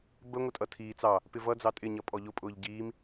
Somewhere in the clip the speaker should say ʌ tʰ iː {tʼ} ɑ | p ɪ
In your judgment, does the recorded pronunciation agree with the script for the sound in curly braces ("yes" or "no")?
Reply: no